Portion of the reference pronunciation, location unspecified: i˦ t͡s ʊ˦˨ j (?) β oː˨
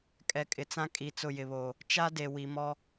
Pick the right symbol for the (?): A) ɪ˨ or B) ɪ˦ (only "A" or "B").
A